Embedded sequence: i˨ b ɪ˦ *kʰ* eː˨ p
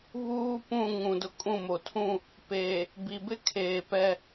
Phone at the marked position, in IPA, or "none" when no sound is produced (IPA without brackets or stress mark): kʰ